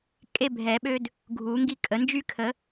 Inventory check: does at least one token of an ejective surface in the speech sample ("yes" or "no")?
yes